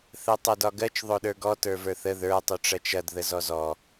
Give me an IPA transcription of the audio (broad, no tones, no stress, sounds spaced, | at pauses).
θ ɜ tˤ o d ɒ ɡ ɜ t͡ʃ ðˤ o ɗ ə˞ ɡ ɔ t ə˞ v ə˞ θ ə ð ə˞ tˤ u ʈ͡ʂ ɐ t͡ʃ ɐ d ð ə z ɔ z ɔ